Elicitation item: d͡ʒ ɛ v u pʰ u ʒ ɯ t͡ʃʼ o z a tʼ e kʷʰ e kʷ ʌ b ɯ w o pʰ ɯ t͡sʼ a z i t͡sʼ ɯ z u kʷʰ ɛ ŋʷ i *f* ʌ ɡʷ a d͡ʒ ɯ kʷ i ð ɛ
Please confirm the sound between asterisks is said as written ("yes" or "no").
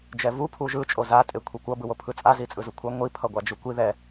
no